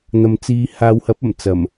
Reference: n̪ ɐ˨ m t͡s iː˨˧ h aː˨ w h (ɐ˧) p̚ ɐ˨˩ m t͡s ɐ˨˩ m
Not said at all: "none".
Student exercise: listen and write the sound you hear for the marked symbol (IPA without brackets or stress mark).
ɐ˨˥